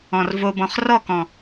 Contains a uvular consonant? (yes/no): yes